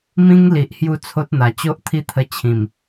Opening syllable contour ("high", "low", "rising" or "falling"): high